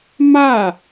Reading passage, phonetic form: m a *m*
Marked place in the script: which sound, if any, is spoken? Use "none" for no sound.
none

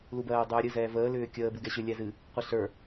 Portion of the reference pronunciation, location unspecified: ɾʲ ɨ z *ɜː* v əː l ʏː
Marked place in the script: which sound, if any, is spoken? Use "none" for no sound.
ɛː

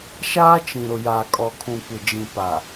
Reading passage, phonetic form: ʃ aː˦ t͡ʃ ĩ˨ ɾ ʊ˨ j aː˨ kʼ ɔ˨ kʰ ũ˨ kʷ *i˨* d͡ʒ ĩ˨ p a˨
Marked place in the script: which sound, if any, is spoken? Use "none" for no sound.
ɪ˨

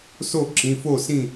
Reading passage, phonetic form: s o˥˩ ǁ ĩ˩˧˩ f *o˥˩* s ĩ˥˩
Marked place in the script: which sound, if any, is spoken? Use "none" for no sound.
o˥˩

